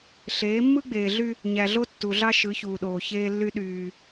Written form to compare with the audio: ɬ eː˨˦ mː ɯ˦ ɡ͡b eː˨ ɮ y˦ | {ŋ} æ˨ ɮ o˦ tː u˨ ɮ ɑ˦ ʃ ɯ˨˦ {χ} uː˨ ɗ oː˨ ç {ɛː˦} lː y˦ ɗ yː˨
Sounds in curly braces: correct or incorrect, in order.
incorrect: ɲ, incorrect: ç, incorrect: eː˦

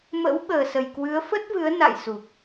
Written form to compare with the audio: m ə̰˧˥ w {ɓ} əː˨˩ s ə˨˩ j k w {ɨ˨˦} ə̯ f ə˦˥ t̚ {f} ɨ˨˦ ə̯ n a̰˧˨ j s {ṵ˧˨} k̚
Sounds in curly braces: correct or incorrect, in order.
correct, correct, incorrect: v, incorrect: u˨˩

